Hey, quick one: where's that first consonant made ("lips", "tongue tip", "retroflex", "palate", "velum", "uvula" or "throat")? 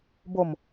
lips